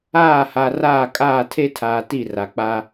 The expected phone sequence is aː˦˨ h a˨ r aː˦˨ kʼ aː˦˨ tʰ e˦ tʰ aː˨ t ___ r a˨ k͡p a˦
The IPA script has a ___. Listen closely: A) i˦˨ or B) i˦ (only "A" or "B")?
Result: A